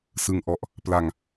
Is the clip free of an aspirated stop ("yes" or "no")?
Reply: yes